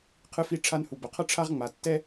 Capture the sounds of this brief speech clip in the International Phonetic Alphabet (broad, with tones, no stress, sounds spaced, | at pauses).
qʰ ɨ˧ f i˧ ʈ͡ʂʰ a˧ n h u˨ b ɐ˨ qʰ ɐ˦ ʈ͡ʂʰ a˦ ʁ ŋ͡m a˨ tː ɛ˦